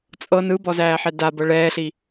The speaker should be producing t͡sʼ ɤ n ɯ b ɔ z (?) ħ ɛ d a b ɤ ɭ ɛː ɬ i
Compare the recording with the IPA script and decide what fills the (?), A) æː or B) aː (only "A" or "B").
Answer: A